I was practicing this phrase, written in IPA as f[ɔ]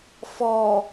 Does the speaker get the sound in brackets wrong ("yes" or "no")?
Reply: no